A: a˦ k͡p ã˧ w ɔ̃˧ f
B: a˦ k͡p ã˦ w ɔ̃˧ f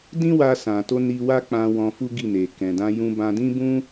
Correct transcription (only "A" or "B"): A